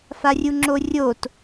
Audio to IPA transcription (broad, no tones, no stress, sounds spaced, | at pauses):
f a rʲ u ŋ͡ǁ o rʲ o t